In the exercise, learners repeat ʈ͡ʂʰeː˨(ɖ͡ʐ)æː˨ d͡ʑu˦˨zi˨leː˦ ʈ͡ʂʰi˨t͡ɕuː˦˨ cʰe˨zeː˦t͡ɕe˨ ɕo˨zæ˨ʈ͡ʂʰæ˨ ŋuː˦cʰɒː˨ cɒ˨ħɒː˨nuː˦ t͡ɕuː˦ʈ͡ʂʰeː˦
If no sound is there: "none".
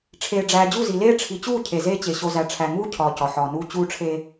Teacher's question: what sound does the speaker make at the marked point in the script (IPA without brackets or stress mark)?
ɖ͡ʐ